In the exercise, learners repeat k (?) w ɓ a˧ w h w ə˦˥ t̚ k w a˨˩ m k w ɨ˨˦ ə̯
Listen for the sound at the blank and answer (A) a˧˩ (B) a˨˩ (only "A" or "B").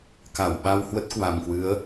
A